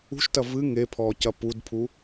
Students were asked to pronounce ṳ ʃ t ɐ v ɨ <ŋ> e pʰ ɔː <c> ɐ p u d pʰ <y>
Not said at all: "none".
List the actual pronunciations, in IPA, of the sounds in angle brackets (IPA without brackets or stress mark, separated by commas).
ŋ, c, u